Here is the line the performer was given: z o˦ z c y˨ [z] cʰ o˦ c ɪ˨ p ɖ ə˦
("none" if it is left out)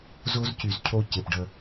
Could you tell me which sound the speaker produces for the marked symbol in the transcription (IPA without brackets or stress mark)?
z